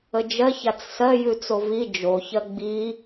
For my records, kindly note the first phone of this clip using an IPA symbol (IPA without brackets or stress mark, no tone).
ə